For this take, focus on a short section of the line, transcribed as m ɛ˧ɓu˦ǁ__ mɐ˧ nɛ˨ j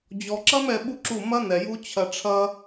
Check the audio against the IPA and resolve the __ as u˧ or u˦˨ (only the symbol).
u˦˨